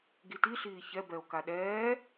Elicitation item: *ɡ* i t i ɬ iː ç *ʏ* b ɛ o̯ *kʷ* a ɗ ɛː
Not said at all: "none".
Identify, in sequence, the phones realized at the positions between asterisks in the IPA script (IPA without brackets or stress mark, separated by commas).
ɡ, ɛ, k